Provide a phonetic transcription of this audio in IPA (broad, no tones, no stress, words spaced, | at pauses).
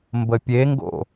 mbəpʲeŋɡo̰